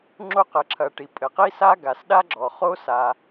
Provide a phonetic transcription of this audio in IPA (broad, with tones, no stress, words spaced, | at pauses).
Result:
ŋ͡ǁo˦qɘ˨ǁʰɐ˨ʈi˩ pʼɘ˩qi˥sa˥ ɡa˩sɗa˥ɡ͡ǁɔ˩ χo˥sa˨